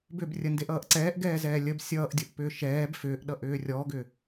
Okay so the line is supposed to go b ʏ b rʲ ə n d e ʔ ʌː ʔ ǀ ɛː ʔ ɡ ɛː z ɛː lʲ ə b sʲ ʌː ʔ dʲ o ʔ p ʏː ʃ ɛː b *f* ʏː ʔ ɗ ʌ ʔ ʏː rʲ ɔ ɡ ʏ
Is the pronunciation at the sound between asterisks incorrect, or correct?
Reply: correct